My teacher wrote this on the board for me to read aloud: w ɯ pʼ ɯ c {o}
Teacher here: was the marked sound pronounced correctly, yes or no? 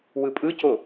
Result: yes